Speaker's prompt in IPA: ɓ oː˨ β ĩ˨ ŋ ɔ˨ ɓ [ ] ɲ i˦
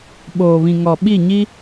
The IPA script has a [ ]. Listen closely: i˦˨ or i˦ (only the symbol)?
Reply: i˦˨